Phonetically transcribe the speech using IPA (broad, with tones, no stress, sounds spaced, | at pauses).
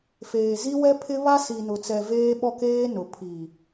f eː˨ z i˦ w ɛ˦ pʰ ɪ˦ β a˦ s i˨ n ʊ˨ t͡s ɛ˨ v eː˦ ɓ ɔ˦ k eː˦ n ʊ˨ pʰ i˨